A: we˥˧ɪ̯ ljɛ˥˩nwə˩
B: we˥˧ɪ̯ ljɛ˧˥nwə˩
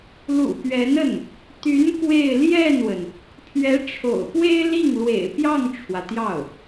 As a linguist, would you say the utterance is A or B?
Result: A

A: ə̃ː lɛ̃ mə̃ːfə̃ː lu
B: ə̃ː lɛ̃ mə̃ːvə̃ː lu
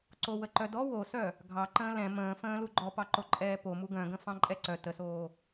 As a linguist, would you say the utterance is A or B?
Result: A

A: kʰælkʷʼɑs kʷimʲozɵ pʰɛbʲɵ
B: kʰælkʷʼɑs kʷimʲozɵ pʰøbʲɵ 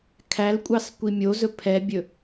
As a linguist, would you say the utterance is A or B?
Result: A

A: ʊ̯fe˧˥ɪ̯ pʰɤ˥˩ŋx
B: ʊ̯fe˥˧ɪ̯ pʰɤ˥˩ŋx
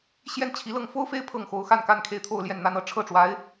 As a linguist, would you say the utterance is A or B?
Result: B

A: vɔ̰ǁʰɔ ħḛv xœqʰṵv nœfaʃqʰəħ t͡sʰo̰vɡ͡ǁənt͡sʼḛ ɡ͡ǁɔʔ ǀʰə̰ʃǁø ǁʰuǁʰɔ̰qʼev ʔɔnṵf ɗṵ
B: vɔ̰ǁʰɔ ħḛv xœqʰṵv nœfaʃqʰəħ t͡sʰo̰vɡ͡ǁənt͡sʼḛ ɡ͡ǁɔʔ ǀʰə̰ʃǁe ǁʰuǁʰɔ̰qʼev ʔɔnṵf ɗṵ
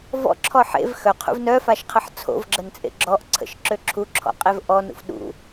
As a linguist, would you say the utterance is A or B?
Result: A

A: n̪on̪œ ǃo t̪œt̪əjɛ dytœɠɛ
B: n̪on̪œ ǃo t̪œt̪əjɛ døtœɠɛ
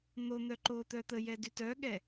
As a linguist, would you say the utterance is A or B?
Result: A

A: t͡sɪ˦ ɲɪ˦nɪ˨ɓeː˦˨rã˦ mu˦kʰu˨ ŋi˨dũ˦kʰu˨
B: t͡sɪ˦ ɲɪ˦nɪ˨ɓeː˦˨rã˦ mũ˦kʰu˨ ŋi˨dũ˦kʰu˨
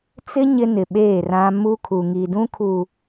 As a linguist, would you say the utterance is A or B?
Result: A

